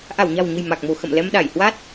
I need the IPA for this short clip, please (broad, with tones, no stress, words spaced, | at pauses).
ʔa˧˩wɲa̤˨˩wɲə̤˨˩j ma˨˩k̚mo̤˨˩ xə̰˧˨m lɛ˧mɗa˧˩j hwa˦˥t̚